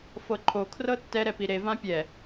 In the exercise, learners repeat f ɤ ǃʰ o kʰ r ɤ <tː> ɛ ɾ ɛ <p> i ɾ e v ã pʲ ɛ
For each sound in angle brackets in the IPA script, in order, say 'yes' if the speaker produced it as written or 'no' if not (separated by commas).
yes, yes